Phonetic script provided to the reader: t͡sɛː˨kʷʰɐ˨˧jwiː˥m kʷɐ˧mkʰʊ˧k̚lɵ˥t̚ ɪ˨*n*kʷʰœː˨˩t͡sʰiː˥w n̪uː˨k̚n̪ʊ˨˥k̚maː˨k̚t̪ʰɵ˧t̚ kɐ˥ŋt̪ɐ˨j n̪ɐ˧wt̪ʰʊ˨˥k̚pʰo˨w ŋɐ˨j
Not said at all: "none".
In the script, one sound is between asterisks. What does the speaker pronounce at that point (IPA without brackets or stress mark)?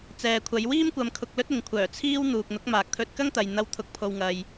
ŋ